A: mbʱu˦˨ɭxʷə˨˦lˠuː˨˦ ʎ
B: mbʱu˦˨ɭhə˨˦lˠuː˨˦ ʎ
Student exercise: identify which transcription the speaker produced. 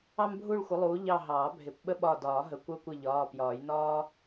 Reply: A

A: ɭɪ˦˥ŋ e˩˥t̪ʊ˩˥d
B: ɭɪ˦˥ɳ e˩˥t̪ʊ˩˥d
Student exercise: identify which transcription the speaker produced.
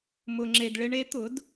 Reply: B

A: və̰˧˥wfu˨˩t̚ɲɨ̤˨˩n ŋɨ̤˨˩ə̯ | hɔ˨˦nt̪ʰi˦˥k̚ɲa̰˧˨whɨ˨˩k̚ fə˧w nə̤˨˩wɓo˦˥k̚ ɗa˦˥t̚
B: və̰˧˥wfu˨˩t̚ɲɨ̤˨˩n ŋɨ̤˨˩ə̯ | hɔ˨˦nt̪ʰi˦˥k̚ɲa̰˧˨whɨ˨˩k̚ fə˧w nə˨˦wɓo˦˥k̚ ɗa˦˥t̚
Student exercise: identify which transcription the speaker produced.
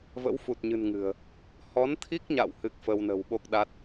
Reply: A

